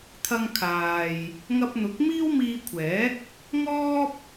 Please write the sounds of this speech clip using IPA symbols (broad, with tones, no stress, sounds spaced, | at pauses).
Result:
t̪ʰ ɐ˧ ŋ kʰ aː˨ j | ŋ ɐ˧ p̚ n̪ ʊ˨˥ k̚ m iː˥ w m iː˧ kʷʰ ɛː˨˥ k̚ | ŋ ɔː˥ p̚